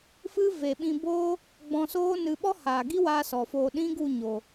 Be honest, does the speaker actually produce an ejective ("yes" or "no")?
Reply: no